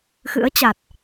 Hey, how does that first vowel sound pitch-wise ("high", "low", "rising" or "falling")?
rising